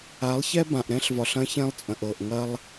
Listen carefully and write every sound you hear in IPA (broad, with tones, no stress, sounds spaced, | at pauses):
a˨˦ lˠ ç ɛ˦ b ã˨ ʔ ɾ ɛ̃˦ ɬ v ɒ˨ ɬ ɐ̃˦ ç ɛ̃˦ lˠ t͡sʼ ɐ̃˨ ʔ ɤ˨ ʔ ŋ ɐ˦ lˠ